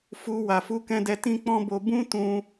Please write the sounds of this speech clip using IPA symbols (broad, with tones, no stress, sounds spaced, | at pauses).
f u˧ w a˨ f u˧ k ɛ̃˧ d ɛ˧ t ĩ˦ k͡p ɔ̃˦ b o˧ b ũ˦ t ũ˧